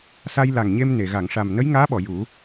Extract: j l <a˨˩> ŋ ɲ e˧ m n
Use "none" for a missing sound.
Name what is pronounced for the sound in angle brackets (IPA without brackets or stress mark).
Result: a˨˩